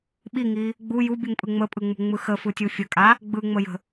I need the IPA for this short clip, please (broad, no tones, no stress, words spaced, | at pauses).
ɓiŋi | ɡ͡bu jubʲuŋpʼɯ ŋ͡məpʼɯŋ͡mṳŋ͡mɯ xəfɯtʲu fʲəkʼa | ɡ͡bɯŋ͡məjə̤